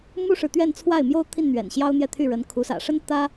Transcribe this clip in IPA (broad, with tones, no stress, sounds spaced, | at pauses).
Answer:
m u˥ ʂ ɻ̩˨ t̪ ɥ ɛ˥˧ n t͡sʰ w a˥˩ ɪ̯ m j o˥ ʊ̯ t̪ʰ i˥˩ n n̪ ɥ ɛ̰˨˩ n ɕ j ɑ˥ ʊ̯ n̪ j ɛ˥˧ t̪ʰ y˥˩ ɻ ə˧˥ n kʰ u˧˥ s ä̰˨˩ ʂ ə˥ n t̪ ä˥